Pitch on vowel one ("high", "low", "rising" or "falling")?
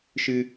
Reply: high